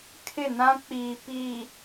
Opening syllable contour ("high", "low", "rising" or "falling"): falling